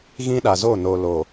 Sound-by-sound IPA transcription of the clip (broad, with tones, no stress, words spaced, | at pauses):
ɣĩ˦ɗa˨zo˦˨ no˨lo˨